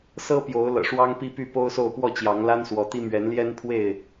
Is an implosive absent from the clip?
yes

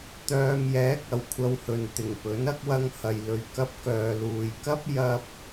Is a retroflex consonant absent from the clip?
yes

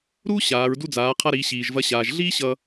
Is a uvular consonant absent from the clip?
no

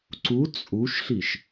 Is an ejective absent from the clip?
no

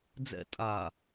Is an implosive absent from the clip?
yes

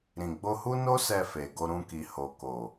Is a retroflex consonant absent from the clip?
yes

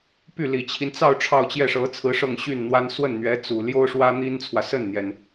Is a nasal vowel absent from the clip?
yes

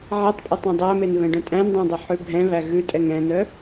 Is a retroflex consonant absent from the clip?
no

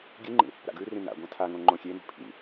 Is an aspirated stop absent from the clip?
no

